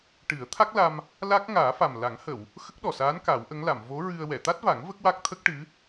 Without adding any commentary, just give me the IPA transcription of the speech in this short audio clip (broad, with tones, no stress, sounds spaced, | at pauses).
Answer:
ʈ ɨ˨˩˦ ə̯ t̪ʰ a˦˥ k̚ l a˧ m | l a˦˥ k̚ ŋ aː˨˩˦ f a˨˩ m l a˨˩˦ ŋ h ə˨˩˨ w | x ə˦˥ k̚ ɗ ɔ˨˩ s aː˧˥ n k a˨˩˦ w ʔ ə˧˥ ŋ l a˨˩˨ m v o˧˥ ɹ ɨ˧ ə̯ w ɛ˨˩˨ t̪ a˦˥ t̚ v a˨˩˦ ŋ v ə˦˥ k̚ w a˦˥ k̚ t̪ʰ ə˦˥ k̚ ʈ ɨ˧˥